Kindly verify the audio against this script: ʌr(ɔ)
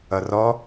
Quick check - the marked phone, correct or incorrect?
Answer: correct